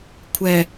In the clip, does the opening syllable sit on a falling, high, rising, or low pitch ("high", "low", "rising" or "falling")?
low